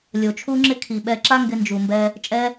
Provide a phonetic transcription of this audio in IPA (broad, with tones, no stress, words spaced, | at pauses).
lʲo˨t͡ʃʰu˦ŋ͡ǁɪ˦ kʰi˨ɓɛ˧ǁa˦ ŋɡɪ˧nd͡ʒu˨ mbɛ˦ | t͡ʃʼɛ˦